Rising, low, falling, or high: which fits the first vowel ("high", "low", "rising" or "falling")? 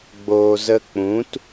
low